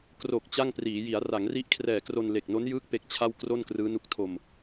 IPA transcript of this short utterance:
k r o˨˩ k̚ t͡ɕ a˥˩ ŋ p r iː˩˦ j i˩˦ a̯ r a˩˦ ŋ r i˦˥ ʔ kʰ r ɛː˨˩ k r o˧ n l e˨˩ k̚ n o˦˥ n j ɯː˦˥ k̚ p e˦˥ k̚ t͡ɕʰ a˥˩ w k r o˥˩ n k r ɯː˦˥ n u˦˥ k̚ tʰ o˧ m

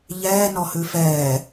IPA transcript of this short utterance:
ʎ ɛː n ɔ h ʉ f ɛː

